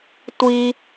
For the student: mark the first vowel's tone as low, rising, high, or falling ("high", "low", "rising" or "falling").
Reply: high